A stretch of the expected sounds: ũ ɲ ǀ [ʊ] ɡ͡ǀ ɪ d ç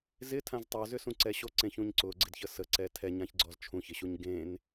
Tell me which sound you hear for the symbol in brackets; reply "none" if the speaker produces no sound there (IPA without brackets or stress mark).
ʊ